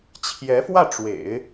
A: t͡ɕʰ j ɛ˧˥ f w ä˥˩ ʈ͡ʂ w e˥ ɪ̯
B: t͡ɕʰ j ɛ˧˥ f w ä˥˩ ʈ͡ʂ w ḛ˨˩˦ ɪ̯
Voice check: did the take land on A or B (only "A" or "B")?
B